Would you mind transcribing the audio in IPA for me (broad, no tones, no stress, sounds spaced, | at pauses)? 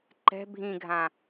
ǃ ɛ̤ bʱ ĩ ɡʱ ã